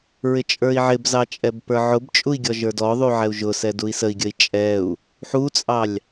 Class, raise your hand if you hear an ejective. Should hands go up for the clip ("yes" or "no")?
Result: yes